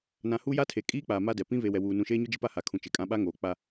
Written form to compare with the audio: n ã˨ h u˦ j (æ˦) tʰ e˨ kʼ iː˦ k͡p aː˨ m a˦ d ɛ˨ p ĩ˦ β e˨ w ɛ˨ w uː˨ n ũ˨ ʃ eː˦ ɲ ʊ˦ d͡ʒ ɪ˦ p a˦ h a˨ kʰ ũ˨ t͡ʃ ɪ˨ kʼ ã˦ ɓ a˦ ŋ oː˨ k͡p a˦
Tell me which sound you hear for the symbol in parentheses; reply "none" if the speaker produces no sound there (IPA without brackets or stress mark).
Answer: a˦